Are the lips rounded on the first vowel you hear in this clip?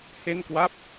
no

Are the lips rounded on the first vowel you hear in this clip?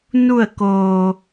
yes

